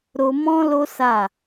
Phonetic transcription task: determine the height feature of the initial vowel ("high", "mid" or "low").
mid